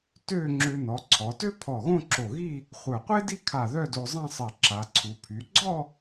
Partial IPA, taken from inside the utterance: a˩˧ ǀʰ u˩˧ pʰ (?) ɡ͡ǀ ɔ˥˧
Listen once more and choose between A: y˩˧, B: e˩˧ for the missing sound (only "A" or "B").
A